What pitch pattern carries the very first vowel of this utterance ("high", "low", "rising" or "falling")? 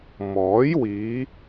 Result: rising